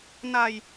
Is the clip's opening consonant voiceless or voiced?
voiced